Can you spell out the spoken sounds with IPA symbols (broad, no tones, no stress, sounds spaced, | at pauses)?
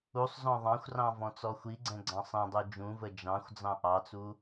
u sˤ z ɔ̃ ðˤ ɑ̃ xʷ r ɑ̃ v ɔ̃ t͡s ɔ xʷ i ɡ͡ǀ ɛ̃ ɡ͡ǀ ɑ̃ sˤ ɛ̃ dˤ u d͡ʒ ũ v ə d͡ʒ ɑ̃ xʷ d͡z ɑ̃ ʔ ɑ t͡s u